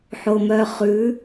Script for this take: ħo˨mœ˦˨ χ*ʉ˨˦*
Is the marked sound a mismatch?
no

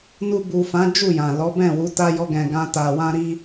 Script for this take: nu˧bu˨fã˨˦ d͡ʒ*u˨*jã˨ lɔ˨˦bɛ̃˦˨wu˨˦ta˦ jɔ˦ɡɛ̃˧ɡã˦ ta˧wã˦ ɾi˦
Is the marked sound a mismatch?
yes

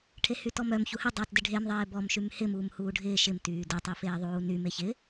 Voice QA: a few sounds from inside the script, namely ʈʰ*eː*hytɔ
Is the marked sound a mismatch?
yes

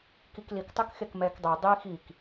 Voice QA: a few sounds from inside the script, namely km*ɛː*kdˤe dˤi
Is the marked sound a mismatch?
no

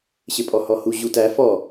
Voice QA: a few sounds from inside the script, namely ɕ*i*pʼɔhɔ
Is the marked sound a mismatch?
yes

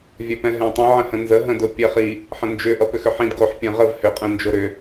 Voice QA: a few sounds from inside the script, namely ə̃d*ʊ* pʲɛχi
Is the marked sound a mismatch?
no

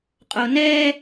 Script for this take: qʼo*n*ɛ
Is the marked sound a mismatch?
no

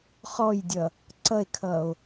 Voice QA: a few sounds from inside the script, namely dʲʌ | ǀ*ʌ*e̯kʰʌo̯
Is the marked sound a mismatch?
no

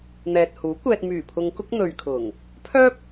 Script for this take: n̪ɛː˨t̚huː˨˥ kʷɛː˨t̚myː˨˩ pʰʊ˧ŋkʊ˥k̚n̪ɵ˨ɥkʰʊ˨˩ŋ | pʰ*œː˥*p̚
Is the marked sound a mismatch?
no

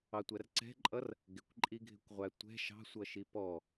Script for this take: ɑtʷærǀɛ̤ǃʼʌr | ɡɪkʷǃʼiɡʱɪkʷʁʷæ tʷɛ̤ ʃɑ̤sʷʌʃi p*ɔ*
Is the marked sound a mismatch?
no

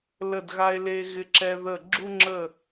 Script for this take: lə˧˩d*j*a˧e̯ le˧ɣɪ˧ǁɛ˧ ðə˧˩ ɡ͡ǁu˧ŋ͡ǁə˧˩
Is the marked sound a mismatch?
yes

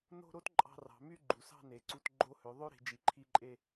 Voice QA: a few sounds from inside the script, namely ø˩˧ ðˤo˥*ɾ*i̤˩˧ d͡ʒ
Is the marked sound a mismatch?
no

